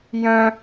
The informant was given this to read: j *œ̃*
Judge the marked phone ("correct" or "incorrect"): correct